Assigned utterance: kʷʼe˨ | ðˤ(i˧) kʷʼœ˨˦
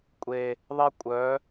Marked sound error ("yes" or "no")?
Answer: yes